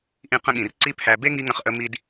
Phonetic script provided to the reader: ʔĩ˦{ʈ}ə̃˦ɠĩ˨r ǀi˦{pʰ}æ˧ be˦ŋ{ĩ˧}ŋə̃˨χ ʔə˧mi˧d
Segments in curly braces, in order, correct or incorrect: incorrect: q, correct, incorrect: i˧

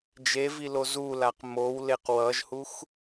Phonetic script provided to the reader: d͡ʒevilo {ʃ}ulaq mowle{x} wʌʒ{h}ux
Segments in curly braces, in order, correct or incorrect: incorrect: z, incorrect: q, correct

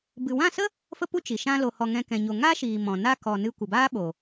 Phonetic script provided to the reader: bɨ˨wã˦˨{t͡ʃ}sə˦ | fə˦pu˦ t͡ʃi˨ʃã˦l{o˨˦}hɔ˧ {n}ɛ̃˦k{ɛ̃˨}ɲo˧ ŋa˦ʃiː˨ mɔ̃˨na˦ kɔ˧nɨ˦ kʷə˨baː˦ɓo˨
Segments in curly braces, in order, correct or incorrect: incorrect: none, incorrect: o˧, incorrect: ŋ, incorrect: ɛ̃˧

